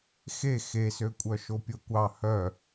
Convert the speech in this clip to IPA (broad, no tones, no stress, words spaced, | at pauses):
xe xesø kʷʼœʃopʲokʷɑ hœ